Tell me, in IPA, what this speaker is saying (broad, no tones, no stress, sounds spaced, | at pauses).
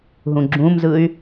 ɦ ũ ɡ͡ǁ ũ m z ɯ y̯